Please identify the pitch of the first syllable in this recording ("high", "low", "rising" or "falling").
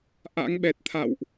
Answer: rising